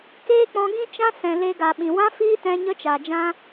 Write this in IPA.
k eː˦ k͡p ɔ̃˧ ɡ ĩ˦ t͡ʃ ã˦ s ɛ̃˨ l e˧ ɡ a˨ ɓ ĩ˨ w ã˦ f iː˦ t ɛ̃˧ ɲ ə˧ t͡ʃ a˨ d͡ʒ ã˧

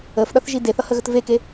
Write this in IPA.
ə f ɗ ʌ θ ʒ i d e θ ʌ h ə ɣ ə t v e k e

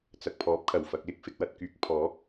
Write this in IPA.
t͡s ɐ˨ k̚ pʰ ɔː˨˥ p̚ kʰ ɐ˨˩ w f ɐ˨ k̚ l ɪ˥ k̚ f ɪ˧ k̚ w ɐ˧ t̚ k yː˨˥ k̚ pʰ ɔː˨˥ k̚

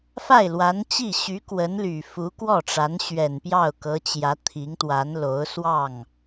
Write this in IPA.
f a˥˩ ɪ̯ l w a˧˥ n t͡ɕ i˥˩ ɕ y˧˥ k w ə˧˥ n l y˨˩ f u˧˥ k w ɔ˥˩ ʈ͡ʂ a˧˥ n ɕ ɥ ɛ˨˩ n p j ɑ˥˩ ʊ̯ k ɤ˧˥ t͡ɕ j ä˧˥ t̪ʰ i˧˥ ŋ t̪ w a˧˥ n l o˧˥ ʊ̯ s w ɑ˥˩ ŋ

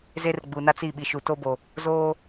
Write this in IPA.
z e˦ r ɡ͡b uː˨ n a˦ t͡s i˦˨ ɓ i˨ ʃ u˨ t o˦ b o˨ | z oː˦

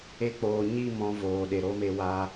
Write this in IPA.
e˧ k͡p oː˨ ɲ i˦˨ m ɔ̃˧ v oː˨ ɗ e˨ ɾ o˦ m e˧ w a˧

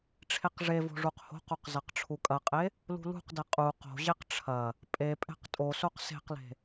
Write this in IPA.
ʈ͡ʂʰ e q ʐ e v o̤ ʐ u q h o̤ q o q z ɐ q ʈ͡ʂʰ u kʼ ɐ qʼ e | l ṳ l ṳ q d ɛ qʼ u q o̤ ʑ e q ʈ͡ʂʰ ɐ | pʼ e pʼ ɛ̤ q tʼ o s o q s e̤ q l e̤

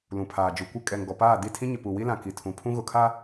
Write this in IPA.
l ũ˨ pʰ aː˨ d͡ʒ u˨ kʷ ɪ˦ kʼ ɛ˨ ŋ ɡ ɔ˨ p aː˦˨ d i˦˨ tʰ ĩ˦ ɲ ɪ˨ p u˨ w i˦ l ã˨ k i˨ tʰ ũ˨ pʰ ũ˦ ɣ ʊ˨ kʰ a˦

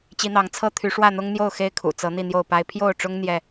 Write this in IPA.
t͡ɕ i˨˦ n̪ ɑ˨˦ ŋ t͡sʰ ɤ˦ t̪ʰ y˨˦ ʂ w ä˥˨ n̪ ʊ˦ ŋ n̪ j o˥˨ ʊ̯ x e˦ ɪ̯ kʰ ṵ˨˩ t͡s ɤ˨˦ n̪ i˥˨ n̪ j o˥˨ ʊ̯ p a˦ ɪ̯ pʰ j o˥˨ ʊ̯ ʈ͡ʂ ʊ˦ ŋ n̪ j ɛ˥˨

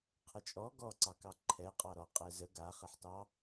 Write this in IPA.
qʰ ə t͡ʃʼ ɔ ɡ ɔ ǀ ɑ k ɑ ǃʰ ɛ qʼ ɑ ɾ ɔ qʼ ɛ z ə ɡ a χ ə ħ t ɑ

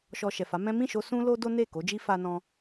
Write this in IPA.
ʃ ɔ˨ ʃ ɛ˨ f a˨˦ m ɛ̃˦ m ĩ˦˨ ʃ o˧ s ũ˦ l o˦ d o˦ n e˦˨ k o˨˦ d͡ʒ i˦ f a˧ n ɔ̃˧

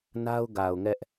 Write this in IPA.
n a˦ ʊ̯ ɡ a˨ ʊ̯ ŋ ɛ˦ ʔ

